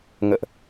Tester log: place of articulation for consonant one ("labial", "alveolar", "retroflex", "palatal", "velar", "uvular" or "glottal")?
velar